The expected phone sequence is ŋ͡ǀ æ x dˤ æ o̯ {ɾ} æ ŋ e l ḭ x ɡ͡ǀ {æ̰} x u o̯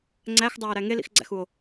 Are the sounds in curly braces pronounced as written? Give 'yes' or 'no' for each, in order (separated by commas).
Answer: yes, yes